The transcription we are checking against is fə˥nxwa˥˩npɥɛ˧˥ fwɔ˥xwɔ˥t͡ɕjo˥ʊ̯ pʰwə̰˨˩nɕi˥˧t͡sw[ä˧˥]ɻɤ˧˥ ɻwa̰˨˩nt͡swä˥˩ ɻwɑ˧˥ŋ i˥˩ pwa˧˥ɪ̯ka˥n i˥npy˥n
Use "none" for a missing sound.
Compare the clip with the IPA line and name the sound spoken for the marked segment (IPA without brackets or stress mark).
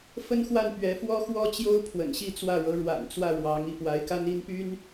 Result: ä˥˩